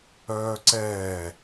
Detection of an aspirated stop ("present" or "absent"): absent